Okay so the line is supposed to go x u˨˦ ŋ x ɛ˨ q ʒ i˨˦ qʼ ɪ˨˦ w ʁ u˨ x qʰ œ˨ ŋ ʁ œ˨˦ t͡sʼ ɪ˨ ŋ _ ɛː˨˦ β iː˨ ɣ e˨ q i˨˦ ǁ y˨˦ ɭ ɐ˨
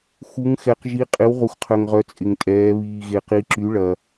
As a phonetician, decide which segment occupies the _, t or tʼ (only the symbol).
tʼ